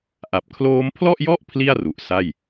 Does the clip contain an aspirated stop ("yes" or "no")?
yes